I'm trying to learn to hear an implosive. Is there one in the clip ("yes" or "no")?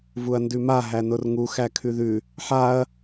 no